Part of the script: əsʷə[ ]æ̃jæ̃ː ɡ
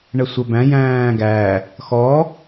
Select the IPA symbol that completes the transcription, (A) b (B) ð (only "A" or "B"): A